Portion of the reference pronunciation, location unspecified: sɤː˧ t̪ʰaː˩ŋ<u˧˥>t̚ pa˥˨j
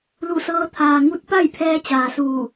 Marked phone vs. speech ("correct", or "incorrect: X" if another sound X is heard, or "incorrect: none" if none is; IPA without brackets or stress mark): correct